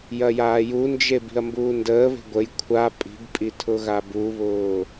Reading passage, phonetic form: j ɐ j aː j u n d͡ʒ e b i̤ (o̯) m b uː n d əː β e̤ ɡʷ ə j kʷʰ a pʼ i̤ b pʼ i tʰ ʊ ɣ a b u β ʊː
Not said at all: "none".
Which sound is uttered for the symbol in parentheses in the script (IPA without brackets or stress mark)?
ɐ̯